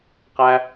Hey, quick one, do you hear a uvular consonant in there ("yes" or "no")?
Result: yes